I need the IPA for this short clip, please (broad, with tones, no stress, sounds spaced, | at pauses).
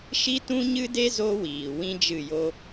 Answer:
ʃ i˦ t ũ˦ ɲ ɨ˦ d e˦ z o˦ w iː˨ w ĩ˦ d͡ʒ ɨ˦˨ j o˦